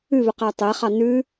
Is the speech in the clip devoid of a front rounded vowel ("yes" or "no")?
yes